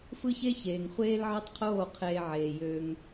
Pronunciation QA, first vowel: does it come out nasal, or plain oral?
oral